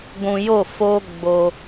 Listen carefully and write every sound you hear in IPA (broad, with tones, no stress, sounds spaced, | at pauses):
ɡʷ ũ˨ j o˦˨ f o˦ ɡ͡b o˦